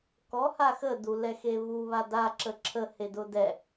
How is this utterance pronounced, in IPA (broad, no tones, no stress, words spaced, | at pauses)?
kɔha xədulɛxe βuβa daǁə ǁʰəhedʊ dɛ